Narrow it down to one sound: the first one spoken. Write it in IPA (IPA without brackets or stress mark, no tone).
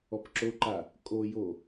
ɔ